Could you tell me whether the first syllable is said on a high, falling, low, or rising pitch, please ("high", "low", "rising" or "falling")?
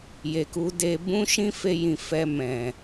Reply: low